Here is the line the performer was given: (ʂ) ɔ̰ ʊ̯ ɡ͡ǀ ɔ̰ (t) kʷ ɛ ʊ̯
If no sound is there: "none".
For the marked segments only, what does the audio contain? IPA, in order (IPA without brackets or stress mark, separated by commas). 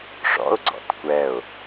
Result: ʂ, t